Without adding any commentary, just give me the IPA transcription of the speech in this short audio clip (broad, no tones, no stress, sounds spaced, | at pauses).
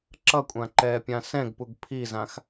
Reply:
ǁ ʌ kʷʼ ã ǃ ɛː pʲ ã s ɛ̃ ɡ p u ɡ pʰ i z ã x